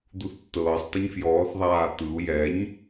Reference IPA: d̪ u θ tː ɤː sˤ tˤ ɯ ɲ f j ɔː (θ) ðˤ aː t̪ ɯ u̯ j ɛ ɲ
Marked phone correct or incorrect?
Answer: correct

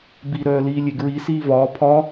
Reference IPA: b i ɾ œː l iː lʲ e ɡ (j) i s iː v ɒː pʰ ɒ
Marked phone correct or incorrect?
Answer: incorrect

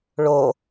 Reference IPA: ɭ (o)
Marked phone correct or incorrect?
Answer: correct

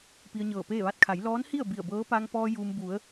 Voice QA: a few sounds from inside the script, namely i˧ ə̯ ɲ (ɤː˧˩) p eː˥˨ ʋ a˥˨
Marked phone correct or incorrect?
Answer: correct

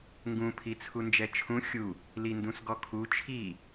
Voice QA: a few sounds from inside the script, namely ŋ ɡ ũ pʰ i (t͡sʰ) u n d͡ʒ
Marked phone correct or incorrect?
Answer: correct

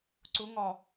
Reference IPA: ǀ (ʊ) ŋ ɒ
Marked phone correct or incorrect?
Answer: correct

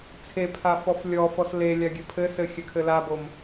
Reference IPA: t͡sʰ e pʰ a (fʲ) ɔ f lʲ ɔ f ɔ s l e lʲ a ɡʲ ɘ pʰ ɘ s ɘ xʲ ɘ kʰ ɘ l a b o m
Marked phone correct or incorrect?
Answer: incorrect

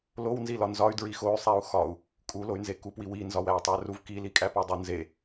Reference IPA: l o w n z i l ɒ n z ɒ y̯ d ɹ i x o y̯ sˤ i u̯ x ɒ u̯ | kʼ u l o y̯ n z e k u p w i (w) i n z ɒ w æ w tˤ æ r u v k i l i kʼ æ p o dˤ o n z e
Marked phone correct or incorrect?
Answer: correct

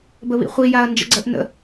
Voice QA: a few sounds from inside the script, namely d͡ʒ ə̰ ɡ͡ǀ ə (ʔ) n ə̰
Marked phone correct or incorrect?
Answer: correct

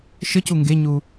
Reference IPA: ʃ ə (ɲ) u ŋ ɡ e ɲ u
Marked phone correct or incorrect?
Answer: incorrect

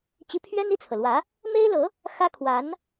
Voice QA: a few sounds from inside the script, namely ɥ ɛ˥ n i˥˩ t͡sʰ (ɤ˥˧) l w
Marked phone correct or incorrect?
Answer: incorrect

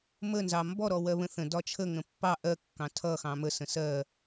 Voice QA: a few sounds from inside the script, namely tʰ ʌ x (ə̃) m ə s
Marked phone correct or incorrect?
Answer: incorrect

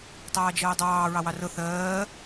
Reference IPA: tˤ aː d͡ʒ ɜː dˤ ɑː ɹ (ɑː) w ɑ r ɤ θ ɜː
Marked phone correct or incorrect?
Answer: incorrect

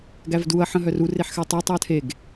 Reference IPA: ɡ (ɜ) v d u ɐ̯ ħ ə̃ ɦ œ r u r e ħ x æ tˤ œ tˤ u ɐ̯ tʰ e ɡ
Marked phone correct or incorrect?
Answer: incorrect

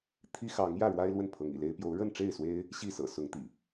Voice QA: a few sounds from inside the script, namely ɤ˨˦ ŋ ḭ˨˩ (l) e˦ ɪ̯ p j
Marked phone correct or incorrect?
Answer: correct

